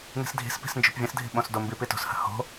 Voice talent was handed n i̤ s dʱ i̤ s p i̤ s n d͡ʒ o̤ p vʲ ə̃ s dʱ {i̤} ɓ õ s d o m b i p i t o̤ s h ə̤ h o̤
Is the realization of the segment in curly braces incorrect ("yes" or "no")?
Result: no